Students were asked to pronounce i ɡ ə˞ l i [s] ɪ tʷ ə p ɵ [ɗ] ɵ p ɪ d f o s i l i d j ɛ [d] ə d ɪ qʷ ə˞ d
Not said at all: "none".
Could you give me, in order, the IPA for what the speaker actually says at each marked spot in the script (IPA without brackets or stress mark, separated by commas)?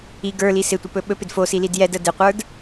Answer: s, ɓ, d